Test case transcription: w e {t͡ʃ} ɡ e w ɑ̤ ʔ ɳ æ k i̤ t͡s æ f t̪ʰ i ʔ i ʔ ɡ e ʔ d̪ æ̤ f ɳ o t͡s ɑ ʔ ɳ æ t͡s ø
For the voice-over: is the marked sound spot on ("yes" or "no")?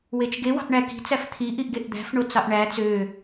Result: yes